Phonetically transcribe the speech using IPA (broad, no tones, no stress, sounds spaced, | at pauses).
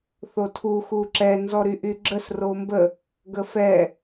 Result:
θ o tʰ u x u ǁ ɛ n z ɔ ɾ y ʔ y ɡ͡ǁ ə s r o m b ə | ɡ ə f ɛ